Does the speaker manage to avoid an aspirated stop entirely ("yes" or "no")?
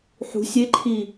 no